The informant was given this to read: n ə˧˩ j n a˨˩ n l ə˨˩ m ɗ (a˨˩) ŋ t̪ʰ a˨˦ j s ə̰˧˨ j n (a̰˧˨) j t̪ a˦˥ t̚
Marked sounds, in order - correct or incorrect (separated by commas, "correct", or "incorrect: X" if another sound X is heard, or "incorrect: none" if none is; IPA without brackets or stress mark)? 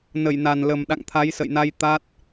incorrect: a̰˧˨, incorrect: a˧